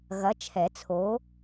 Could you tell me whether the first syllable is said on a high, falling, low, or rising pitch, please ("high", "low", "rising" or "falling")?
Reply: rising